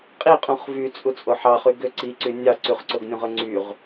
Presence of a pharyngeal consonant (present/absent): present